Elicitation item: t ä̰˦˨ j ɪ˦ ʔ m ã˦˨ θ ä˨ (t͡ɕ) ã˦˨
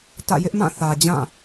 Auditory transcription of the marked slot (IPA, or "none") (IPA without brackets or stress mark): d͡ʑ